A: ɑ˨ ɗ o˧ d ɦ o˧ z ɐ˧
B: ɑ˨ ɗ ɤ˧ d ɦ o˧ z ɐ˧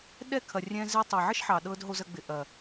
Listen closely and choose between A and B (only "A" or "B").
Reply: B